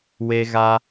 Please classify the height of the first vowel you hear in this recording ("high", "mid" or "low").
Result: mid